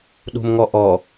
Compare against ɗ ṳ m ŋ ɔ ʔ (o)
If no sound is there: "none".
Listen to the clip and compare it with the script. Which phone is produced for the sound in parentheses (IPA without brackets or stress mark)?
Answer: ɔ